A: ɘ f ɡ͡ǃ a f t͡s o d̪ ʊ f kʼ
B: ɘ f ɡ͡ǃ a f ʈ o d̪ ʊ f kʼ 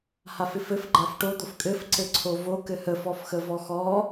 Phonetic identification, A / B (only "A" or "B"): B